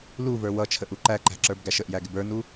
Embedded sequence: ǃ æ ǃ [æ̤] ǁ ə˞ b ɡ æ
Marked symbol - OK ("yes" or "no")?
yes